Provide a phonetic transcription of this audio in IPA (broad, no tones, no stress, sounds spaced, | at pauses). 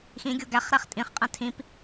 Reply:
x ĩ ɡʲ o ɡ æ χ ɾ æ χ tʼ ĩ χ qʼ æ̃ tʰ ĩ p